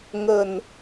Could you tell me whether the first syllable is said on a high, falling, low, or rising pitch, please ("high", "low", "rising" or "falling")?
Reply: low